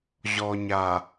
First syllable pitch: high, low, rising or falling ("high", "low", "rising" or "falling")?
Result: low